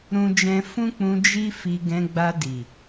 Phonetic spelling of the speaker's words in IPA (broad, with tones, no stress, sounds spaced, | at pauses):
ɾ ũ˦ d͡ʒ ɛ̃˦ f ũ˦ k͡p ũ˧ d͡ʒ i˦ f i˧ ɡ ɛ̃˧ ɡ͡b a˧ d i˨